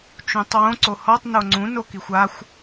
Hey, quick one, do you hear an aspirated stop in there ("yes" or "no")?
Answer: no